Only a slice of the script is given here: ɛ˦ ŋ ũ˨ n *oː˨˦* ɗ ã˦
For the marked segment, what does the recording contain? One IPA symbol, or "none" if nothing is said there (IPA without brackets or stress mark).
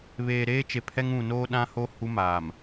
oː˦